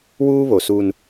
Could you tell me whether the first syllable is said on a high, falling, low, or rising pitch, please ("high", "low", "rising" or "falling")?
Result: high